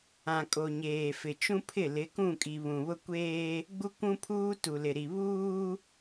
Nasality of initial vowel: nasal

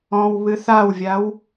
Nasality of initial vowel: nasal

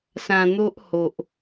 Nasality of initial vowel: nasal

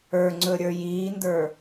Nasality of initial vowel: oral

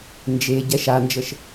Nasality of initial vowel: oral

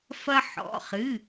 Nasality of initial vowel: oral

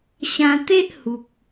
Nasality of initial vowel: nasal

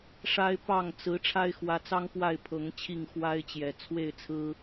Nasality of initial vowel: oral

